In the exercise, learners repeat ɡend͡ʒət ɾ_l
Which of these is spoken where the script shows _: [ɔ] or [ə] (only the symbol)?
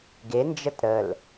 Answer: ə